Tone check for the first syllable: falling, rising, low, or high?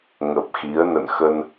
low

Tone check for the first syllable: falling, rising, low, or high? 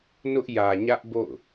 high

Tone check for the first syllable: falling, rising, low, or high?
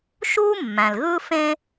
high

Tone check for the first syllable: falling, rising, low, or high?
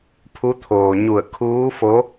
rising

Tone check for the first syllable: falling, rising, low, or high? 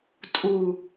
low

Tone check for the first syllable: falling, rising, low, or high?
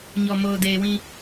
low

